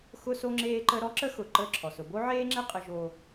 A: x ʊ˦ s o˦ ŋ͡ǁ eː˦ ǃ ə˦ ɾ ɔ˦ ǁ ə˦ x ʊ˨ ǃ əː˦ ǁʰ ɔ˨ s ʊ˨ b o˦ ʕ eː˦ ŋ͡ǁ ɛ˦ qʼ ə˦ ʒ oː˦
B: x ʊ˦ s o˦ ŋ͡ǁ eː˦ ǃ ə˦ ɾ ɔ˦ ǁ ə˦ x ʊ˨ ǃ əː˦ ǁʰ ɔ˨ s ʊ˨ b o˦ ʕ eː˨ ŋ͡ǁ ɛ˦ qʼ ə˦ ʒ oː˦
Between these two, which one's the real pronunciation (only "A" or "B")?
A